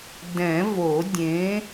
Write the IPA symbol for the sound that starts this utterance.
d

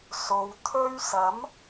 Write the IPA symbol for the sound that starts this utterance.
s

